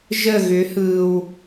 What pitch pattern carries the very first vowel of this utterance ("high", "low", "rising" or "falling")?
falling